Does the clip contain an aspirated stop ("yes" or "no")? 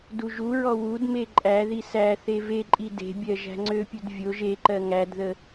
no